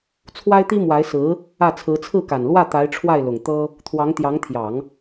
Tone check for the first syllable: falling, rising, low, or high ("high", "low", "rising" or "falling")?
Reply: high